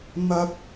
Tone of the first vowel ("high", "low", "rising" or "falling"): high